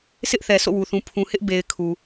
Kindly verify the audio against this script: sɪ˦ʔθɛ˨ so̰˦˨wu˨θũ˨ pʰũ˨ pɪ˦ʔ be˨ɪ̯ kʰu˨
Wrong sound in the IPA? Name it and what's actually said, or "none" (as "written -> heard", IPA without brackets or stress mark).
p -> h